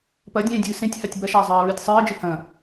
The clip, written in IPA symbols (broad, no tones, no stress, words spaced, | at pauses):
pɐdʲẽːdʲɨː sẽtʲhatʲ bɐʃaə̯zˤɨːə̯ɹɨːtʲ sˤɨːə̯d͡ʒɨ hɐ̃